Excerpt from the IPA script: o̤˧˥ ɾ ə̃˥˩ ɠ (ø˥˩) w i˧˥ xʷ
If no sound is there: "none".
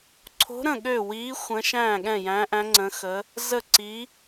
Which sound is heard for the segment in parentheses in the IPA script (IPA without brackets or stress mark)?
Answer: ø˥˩